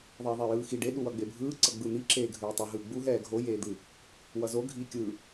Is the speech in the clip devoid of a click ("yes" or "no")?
no